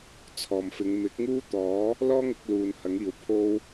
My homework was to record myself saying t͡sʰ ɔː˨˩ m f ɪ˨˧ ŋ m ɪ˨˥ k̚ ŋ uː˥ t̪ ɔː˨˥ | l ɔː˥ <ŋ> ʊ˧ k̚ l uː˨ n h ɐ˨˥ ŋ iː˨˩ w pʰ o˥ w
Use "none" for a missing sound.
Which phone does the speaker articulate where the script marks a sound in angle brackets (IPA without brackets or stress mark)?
ŋ